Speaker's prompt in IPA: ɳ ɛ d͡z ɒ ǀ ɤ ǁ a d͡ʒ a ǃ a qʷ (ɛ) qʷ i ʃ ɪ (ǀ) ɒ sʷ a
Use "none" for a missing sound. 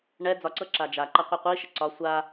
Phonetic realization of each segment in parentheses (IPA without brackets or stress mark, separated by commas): ɛ, ǀ